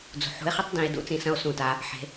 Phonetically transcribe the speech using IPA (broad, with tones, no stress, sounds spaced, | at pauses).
d͡z ṳ˩ ħ ṳ˧˥ e̯ χ i˥ tˤ d ĩ˩˧ e̯ d ṵ˧˥ t͡s ĩ˩˧ s ɐ̃˧ o̯ s ũ˩ t a˩˧ | ħ e̤˩˧